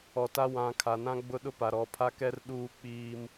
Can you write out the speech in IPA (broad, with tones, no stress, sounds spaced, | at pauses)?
ɔ˨ t a˦ w ã˨˦ kʰ a˨ n ã˦ ɡ͡b ʊ˦ ɗ ʊ˦ p a˨ ɾ ɔ˨ pʰ a˦ k ɛ˦ r ɗ uː˦ k͡p iː˦ m